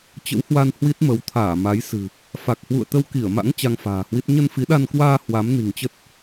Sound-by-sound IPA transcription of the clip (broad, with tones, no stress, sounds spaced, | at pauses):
t͡ɕ ə̰˧˥ w h w a˧ n h w i˦˥ t̚ m ə˨˦ w t̪ʰ aː˧˩ m a˨˦ j s ɨ̤˨˩ | f a˨˩ k̚ h w ṵ˧˨ ə̯ t̪ ə˧ w k i˧˩ ə̯ m a̰˧˥ ŋ t͡ɕ a˧ ŋ f a̤ː˨˩ h w i˦˥ t̚ ɲ ə˧ n f i˨˦ ɗ a˧ n k w aː˧ h w a˨˦ m n i̤˨˩ ŋ t͡ɕ ə˦˥ t̚